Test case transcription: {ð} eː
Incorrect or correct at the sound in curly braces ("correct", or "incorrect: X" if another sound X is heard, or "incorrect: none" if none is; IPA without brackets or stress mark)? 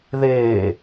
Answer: correct